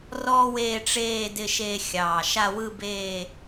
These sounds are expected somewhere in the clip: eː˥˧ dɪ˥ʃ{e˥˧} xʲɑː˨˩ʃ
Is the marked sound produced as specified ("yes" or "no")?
yes